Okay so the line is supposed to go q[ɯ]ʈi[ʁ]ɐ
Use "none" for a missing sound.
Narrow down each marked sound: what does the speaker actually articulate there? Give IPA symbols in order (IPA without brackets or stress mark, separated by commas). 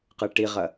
ɯ, ʁ